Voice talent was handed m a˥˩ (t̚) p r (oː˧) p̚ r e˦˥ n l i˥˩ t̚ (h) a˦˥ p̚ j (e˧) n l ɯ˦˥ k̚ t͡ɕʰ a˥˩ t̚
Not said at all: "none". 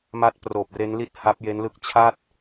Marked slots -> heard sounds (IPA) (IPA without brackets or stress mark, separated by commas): t̚, oː˨˩, h, e˦˥